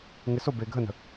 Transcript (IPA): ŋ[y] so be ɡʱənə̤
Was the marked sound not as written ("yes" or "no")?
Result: yes